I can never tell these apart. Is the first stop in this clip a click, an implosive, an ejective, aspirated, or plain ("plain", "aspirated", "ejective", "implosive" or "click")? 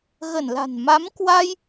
plain